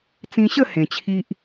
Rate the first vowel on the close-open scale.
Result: close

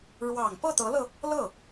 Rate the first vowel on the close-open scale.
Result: open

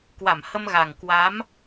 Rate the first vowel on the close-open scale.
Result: open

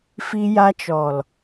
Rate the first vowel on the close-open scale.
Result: close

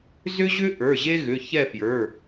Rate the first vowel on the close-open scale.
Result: close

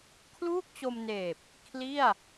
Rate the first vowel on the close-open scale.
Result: close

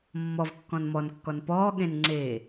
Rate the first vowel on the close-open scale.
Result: mid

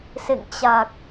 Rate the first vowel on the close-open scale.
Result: mid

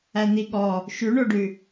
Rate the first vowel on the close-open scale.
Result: open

